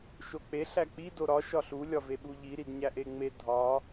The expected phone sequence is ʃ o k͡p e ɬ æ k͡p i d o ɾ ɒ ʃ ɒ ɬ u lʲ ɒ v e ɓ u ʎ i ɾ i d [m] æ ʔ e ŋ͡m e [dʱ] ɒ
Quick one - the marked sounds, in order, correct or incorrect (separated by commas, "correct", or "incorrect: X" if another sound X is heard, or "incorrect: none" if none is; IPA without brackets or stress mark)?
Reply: incorrect: ɲ, correct